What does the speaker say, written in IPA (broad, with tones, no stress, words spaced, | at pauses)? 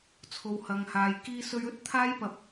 t͡sʰo˨whɐ˨ŋhaː˨j kiː˧sɵ˧ɥ ɵ˥t̚t̪ʰaː˥jpɐ˧p̚